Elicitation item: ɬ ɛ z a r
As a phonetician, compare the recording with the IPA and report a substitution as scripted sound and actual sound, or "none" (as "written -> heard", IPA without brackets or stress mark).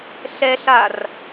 z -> ɬ